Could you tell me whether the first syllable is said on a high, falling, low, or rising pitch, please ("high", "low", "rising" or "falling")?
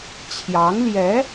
rising